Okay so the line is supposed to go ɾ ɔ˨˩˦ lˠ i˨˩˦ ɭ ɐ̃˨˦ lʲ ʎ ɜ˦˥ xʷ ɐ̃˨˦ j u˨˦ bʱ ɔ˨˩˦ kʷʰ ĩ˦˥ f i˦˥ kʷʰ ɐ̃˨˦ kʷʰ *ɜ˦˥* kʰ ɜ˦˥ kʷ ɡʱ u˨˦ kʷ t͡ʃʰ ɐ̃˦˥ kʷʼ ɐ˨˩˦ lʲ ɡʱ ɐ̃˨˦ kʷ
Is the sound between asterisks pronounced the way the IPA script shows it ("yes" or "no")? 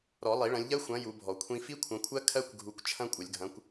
yes